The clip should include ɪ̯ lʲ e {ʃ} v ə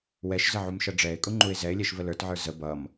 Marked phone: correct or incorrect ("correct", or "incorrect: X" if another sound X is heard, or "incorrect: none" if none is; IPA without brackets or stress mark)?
correct